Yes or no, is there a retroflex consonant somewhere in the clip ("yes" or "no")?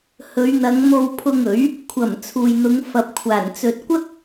no